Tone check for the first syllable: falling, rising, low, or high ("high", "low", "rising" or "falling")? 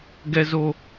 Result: high